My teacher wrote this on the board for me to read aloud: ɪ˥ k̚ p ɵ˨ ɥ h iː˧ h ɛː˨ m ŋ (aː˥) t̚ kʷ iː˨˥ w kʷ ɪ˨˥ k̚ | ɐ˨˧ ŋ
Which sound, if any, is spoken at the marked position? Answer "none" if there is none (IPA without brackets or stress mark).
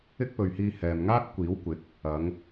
aː˥